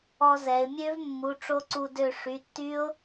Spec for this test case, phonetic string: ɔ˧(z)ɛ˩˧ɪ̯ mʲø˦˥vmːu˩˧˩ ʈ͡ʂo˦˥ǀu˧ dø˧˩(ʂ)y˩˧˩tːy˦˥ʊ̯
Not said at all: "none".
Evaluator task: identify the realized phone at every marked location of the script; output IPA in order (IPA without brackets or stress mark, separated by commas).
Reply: z, ʂ